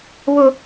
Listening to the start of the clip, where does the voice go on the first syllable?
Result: high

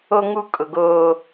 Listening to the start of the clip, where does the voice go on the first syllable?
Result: high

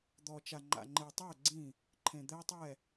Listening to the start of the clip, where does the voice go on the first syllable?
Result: low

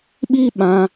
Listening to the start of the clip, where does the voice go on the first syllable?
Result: high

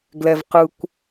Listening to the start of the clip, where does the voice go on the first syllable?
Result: low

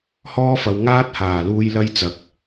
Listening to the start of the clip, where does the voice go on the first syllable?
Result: high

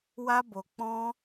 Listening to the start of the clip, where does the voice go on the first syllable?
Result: high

